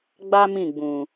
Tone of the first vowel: high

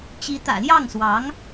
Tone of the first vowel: rising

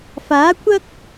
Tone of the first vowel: rising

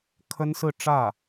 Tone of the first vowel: high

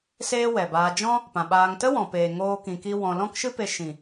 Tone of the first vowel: high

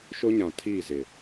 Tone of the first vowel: high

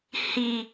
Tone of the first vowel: low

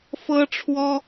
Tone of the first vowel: high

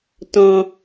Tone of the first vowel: high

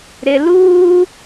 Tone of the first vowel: high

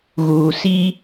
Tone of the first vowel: low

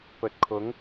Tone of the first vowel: rising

